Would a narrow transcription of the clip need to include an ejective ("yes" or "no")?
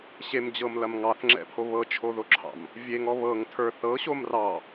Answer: no